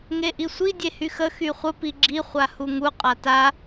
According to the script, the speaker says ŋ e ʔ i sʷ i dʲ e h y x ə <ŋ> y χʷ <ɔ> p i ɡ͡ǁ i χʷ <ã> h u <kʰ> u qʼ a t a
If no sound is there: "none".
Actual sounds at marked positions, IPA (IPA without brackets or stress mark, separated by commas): x, ə, a, ŋ